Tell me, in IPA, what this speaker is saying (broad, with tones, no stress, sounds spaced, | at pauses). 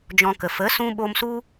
d͡ʒ ɔ̃˧ k ə˨ f ə˨˦ s ũ˧ ɓ o˧ m s u˦